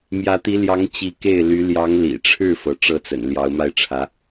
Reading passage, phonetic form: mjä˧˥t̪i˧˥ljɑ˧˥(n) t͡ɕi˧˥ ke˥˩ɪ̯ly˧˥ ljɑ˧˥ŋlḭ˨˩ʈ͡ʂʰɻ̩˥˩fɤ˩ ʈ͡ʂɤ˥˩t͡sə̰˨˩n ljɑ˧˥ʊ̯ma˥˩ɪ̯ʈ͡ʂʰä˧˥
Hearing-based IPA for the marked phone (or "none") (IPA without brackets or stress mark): ŋ